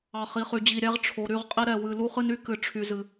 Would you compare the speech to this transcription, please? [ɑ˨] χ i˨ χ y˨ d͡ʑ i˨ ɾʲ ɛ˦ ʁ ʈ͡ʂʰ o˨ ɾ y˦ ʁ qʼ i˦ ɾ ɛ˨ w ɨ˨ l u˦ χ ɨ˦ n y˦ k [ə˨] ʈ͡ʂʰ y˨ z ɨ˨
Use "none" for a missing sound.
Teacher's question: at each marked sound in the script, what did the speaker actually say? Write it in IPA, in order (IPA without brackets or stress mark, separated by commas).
ɑ˨, ɨ˨